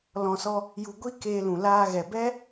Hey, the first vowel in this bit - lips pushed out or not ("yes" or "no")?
yes